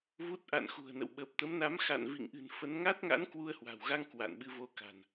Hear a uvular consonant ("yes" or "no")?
no